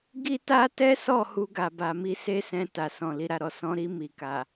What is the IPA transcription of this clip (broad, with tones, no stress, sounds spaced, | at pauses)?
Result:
ɡ i˦ t a˦ t ɛ˦ s ɔ˦˨ h u˧ ɡ a˨ b a˨ m i˨˦ s e˦ s ɛ̃˧ t a˨ s ɔ̃˨ l i˨ ɾ a˨ ɾ ɔ˨ s ɔ̃˨˦ ɾ i˧ m i˨ k a˨